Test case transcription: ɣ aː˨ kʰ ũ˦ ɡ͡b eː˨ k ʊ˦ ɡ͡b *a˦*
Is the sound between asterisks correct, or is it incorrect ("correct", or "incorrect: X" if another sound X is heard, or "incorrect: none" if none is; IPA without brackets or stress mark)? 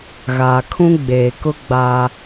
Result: correct